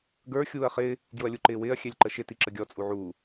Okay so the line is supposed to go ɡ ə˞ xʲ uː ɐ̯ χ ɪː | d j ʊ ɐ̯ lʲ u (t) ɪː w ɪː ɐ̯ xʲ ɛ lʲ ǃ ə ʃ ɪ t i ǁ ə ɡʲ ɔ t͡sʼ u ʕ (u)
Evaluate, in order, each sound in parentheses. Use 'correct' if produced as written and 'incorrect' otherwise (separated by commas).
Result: incorrect, incorrect